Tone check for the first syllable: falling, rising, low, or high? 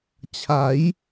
rising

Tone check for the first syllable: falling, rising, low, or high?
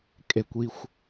low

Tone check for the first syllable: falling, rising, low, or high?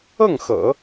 falling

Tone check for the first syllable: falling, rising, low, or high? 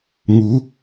rising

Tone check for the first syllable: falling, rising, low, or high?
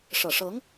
low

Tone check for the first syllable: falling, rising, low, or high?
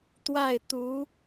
falling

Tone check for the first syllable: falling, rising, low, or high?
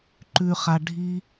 low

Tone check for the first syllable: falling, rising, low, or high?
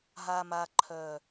low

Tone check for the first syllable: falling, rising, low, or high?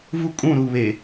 high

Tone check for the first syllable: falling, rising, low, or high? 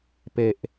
high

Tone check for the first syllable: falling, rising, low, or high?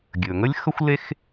low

